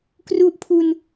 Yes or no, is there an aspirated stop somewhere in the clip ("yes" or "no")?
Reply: yes